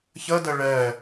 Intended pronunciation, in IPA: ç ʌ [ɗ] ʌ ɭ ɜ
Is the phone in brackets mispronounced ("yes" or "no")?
yes